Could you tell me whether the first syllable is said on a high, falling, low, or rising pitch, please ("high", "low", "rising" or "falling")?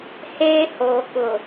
high